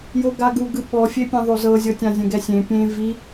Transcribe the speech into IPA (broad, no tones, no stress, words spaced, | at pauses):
joɡaɡuɡɯ ɓɔfʲepʲɛ̃ ðˤozɤzʲɤtʲã zʲɛ̃ɡɛsʲẽ pʲẽ vi